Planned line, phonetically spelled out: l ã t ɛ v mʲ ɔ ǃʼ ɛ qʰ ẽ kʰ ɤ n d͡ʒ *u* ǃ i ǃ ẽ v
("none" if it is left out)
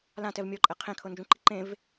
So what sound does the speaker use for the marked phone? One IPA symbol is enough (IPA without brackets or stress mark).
ũ